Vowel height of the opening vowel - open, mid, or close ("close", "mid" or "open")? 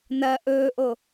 open